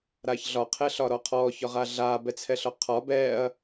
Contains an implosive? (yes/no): no